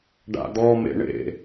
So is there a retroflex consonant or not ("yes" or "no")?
yes